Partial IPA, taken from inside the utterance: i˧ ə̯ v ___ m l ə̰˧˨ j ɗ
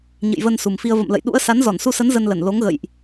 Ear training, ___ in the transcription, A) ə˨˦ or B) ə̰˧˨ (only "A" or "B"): B